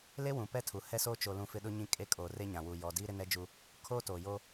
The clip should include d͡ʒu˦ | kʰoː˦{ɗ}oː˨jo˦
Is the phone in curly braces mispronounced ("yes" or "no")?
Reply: yes